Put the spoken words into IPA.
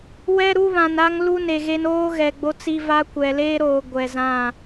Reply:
w ɛ˦ ɾ u˦ β ã˨ n a˦ ŋ l u˦ n e˨ ɣ e˦ n oː˦ ɣ ɛ˨ ɡ͡b o˦ t͡s i˦ v a˦ kʷ ɛ˨ l eː˦ ɾ oː˨ ɡʷ ɛ˨ z ã˦˨

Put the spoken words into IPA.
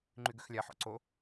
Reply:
ŋ͡ǃ y ɡ ø x lʲ a ħ ɔ̰ ǀ o

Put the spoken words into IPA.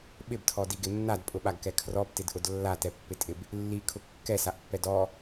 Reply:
ɓ ɪ b tʰ ɔ d i ɡ ɪ nː a d pʼ ʊ ɓ a ɡ k ɛ kʰ r ɔ b t ɪ d ʔ ʊ d lː a t ɛ pː ɪ tʼ ɪ b | lː i kʰ ʊ kː ɛ s a ʔ pː ɛ d ɔ

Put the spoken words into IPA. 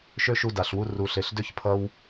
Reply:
ʃ ø˦ ʃ u˧ d a˨ ɬ w u˧ r u˨ ɬ e˨ ɬ d ø˦ ç pʰ ʌ˧ w

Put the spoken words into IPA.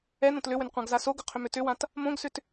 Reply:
ɛ n õ t l ʏ w ʏ n qʷ ã ɡ z a s o ɡ ʏ qʰ ʏ m ʏ t ʏ w ã t | m õ ɡ s ʏ t

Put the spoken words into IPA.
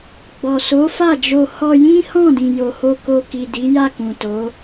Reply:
ɡ͡b ɔ˨ s o˨˦ f a˦˨ d͡ʒ o˧ h ɔ˧ j ĩ˦ h ɔ̃˦˨ d ĩ˨ j o˨ h o˧ k o˧ k i˨ d i˨˦ j a˦˨ k ũ˨ t o˨˦

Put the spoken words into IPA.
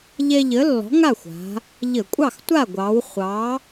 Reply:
ʎ ɛ˦ ʎ ə˨˥ lː ɔ̤˨˥ ŋ a˥˨ xʷ a̤˩˧ | ʎ ə˧˩˧ kʷʼ ɑ˥˨ x tʷ a˥˨ ɡʷ ɑ˩˧ w χʷ ɑ˨˥

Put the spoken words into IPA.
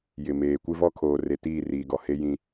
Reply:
j ɪ˨ m eː˨ kʷ ɪ˦ v ɔ˦ kʰ oː˨ r e˨ t iː˦˨ r iː˨ ɡ ɔ˨ h e˦ j ĩ˦

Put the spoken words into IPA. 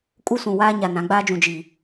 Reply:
kʼ u˦ s ũ˨ w aː˦ ɲ a˨ n ã˨˦ ɡ͡b aː˦ d͡ʒ ũ˨ d͡ʒ i˨

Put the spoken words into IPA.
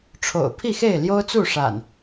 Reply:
ʈ͡ʂʰ o̰˨˩ ʊ̯ pʰ i˥˨ x e˥˨ ɪ̯ l j o˦ ʊ̯ t͡s u˥˨ ʂ a̰˨˩ n

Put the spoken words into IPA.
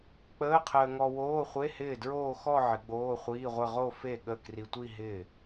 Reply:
k͡p əː˧˥˧ qʰ əː˧ ŋ ɔ˧ w oː˧˥˧ χʷ e˧˥˧ h ɪː˥˩ d ɹ oː˥˧ x ɔ˥˧ ʕ ɪ˨˩˦ ɡ͡b oː˧˥˧ χʷ iː˧˥˧ ʁʷ ɘ˥˧ ʁ o˥˧ f e˥˩ ɠ ə˥˩ k r i˧ tʷ i˥˧ ɦ ɪ˥˩

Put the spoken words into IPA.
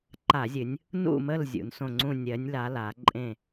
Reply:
ǃ a˧˩˧ zʲ ɨ˩˧ nʲ | n ṵ˦˨ m ə˦˨ l zʲ ṵ˩˧ n s õ˦˨ ŋ͡ǀ ũ˦˨ nʲ ɜ˩˧ nʲ l a˩˧ l a˩˧ ǃʼ ẽ˦˨

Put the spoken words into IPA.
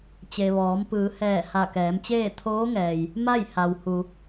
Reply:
t͡ɕ e˩ ʋ ɔː˩˧ m p ɯː˩˧ h ɛː˧˩ h a˧˩ k ɛː˩˧ m t͡ɕ eː˥˨ t̪ʰ oː˧˥ ŋ ɛː˩ j | m a˥˨ j h a˩ w h u˩

